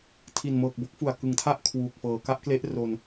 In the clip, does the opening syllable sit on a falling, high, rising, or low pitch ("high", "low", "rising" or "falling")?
low